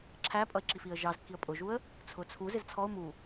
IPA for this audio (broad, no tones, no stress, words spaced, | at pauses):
ǁʰæpʼʌɪ̯ǁifiə̯ ʒɑzkːiə̯ pʼʊʒuə̯ | t͡sʰʊt͡sʰu zɪzt͡sʰɔʊ̯ mu